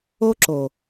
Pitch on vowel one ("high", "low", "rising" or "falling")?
high